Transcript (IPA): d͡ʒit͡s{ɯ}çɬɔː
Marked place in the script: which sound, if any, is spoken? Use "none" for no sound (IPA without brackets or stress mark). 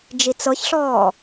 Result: ɤ